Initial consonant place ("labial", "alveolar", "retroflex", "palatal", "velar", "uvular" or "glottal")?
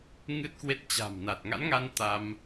velar